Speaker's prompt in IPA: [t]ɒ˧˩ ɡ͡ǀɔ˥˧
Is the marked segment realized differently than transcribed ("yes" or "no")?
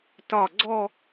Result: no